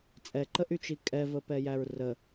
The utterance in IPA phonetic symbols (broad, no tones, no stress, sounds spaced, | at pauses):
t͡sʼ ɛ ǃ ə ʔ y t͡ʃ i kʼ ɛ v ə p ɛ j æ ɹ r ə